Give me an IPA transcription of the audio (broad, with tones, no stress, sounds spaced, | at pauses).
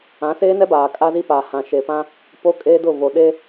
ã˨˦ s eː˦ n ɛ˦ b aː˨ kʼ a˦ z i˦ p aː˨ h ã˨ ʃ e˨ p ã˦ | p o˦ kʼ eː˦ d ʊ˦˨ v o˨ ɗ e˦